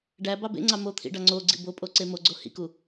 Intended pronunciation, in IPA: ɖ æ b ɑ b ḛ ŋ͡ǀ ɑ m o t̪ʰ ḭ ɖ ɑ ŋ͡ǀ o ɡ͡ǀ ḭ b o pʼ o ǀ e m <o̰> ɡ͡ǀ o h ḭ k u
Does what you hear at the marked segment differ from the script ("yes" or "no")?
yes